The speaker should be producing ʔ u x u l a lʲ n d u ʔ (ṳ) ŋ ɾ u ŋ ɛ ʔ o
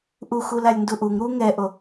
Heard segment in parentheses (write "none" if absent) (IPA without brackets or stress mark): u